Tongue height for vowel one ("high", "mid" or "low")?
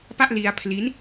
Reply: low